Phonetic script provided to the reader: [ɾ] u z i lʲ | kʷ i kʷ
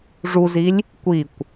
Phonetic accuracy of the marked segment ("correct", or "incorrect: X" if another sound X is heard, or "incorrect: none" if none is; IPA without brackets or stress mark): incorrect: ʐ